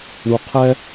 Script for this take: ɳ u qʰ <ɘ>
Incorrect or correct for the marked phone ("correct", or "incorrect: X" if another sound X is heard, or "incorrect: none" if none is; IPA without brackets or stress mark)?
incorrect: ɛ